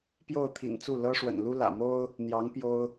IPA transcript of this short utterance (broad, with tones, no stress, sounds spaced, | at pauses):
p j o˥˩ ʊ̯ t̪ʰ ḭ˨˩ n t͡s u˥˩ l ɤ˥ ʂ w ə̰˨˩ n l u˥ l ä̰˨˩ m o˥ ʊ̯ | n̪ j ɑ˧˥ ŋ p j o˥ ʊ̯